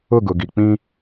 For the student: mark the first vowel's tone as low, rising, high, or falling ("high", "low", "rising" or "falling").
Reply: falling